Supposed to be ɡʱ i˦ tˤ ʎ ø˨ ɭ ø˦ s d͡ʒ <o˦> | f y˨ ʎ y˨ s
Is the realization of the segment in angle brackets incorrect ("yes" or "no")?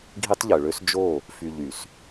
yes